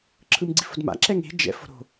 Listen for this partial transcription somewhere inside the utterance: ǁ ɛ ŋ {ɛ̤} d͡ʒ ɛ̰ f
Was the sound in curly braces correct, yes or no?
no